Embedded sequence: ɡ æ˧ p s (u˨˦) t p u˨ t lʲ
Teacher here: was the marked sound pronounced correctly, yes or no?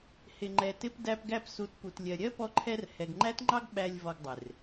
yes